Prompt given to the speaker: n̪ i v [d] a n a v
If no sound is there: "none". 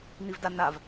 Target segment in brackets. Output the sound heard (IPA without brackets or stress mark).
d